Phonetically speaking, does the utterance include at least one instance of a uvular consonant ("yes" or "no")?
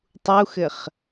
yes